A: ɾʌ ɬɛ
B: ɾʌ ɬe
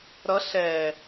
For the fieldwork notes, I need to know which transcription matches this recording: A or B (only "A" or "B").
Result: A